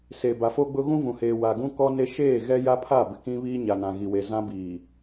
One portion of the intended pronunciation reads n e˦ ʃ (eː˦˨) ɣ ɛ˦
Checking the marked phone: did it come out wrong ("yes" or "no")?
no